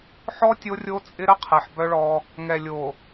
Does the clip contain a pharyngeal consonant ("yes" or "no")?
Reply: yes